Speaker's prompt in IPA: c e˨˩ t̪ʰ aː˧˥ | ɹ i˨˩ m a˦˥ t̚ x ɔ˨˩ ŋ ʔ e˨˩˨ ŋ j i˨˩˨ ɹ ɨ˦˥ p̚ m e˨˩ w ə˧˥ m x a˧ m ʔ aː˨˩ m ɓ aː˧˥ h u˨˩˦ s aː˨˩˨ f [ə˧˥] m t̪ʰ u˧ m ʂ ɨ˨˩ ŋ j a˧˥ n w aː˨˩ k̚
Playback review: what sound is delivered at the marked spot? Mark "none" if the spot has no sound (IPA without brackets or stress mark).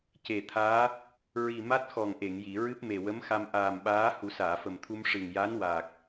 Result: ə˨˩